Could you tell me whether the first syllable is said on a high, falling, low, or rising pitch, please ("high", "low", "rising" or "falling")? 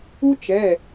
high